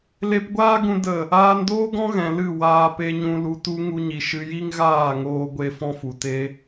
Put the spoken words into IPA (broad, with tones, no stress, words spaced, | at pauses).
le˧pɡʷaː˦ɡũ˧ də˦˨ | aː˧ndoː˦ɡɔ̃˦ɣɛ̃˨ lɨ˦˨ waː˧pe˧ɲũ˧ lu˧tu˦ ŋu˧ɲi˨ ʃɨ˧ji˦ŋɣaː˦˨ŋoː˧ ɡʷe˧fɔ̃˦fu˨ te˦